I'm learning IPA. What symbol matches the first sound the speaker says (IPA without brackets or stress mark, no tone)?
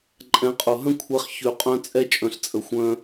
ǃʼ